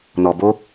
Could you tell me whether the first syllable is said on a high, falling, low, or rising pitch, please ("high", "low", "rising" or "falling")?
low